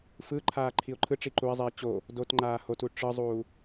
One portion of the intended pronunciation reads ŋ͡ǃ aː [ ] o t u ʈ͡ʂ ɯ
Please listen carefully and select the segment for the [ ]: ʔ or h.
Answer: h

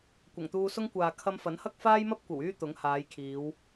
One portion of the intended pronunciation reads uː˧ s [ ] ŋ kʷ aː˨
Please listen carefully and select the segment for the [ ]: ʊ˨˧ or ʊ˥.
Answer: ʊ˥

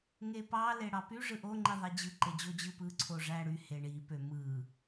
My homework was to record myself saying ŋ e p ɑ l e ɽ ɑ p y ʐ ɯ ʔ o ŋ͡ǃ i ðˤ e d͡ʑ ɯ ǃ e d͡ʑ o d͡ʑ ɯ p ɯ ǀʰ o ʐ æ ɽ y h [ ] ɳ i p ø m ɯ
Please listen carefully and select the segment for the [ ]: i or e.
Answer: e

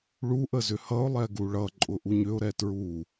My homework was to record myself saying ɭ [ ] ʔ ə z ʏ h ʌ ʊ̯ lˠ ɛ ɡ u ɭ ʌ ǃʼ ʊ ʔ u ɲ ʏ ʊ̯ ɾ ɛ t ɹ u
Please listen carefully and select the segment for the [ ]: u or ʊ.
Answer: u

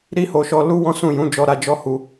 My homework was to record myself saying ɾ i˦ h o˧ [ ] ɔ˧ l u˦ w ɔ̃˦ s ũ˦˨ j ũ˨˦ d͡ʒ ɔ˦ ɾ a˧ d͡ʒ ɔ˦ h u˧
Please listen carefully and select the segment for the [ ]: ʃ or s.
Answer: ʃ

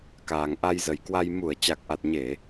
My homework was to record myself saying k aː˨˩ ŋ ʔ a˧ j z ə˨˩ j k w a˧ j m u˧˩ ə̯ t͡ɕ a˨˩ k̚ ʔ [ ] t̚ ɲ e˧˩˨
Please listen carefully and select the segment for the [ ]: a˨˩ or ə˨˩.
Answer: a˨˩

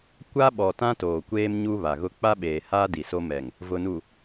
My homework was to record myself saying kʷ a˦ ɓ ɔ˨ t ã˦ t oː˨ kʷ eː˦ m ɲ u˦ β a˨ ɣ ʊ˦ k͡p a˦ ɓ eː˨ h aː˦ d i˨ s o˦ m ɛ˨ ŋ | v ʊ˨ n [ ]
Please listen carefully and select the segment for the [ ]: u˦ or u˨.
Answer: u˨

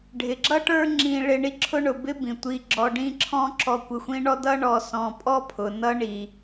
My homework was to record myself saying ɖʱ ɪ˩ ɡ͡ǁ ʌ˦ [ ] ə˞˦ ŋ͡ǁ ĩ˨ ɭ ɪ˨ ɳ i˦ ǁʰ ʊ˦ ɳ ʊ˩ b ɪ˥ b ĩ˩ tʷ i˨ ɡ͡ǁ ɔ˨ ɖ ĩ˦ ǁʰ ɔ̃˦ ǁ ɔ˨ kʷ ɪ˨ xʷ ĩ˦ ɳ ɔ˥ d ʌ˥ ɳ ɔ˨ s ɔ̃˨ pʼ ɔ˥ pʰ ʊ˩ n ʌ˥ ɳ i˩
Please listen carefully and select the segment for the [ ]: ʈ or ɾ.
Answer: ʈ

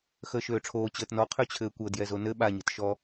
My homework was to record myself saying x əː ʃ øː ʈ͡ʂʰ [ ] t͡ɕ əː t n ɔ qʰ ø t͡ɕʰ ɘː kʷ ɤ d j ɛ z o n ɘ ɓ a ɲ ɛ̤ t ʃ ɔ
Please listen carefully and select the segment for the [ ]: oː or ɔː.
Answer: oː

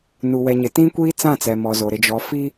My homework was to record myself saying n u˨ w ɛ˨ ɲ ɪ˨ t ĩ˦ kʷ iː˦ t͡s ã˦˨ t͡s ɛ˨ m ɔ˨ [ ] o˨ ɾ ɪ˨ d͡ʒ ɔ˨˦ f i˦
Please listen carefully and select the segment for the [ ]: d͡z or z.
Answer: z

